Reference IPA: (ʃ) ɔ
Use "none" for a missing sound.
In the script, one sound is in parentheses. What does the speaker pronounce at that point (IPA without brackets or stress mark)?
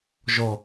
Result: ʒ